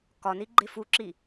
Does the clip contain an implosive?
no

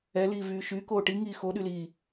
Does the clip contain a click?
no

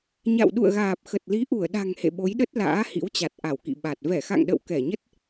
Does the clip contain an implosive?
yes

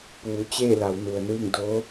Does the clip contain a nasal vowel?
no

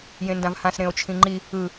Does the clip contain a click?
yes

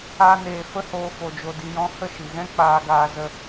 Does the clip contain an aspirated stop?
no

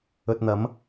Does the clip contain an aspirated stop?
no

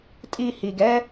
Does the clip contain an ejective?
yes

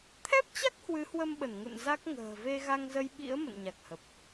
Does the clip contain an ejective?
no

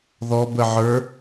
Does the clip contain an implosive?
no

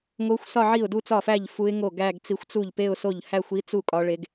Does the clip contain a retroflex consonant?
yes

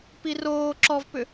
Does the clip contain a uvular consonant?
no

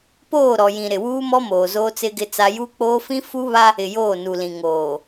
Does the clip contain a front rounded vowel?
no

